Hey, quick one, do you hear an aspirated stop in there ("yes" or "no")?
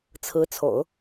yes